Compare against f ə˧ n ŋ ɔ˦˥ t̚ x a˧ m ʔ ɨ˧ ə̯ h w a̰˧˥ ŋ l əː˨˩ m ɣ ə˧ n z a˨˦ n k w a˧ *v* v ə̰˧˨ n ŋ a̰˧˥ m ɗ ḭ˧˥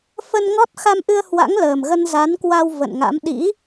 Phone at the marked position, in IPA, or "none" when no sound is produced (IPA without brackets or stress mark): w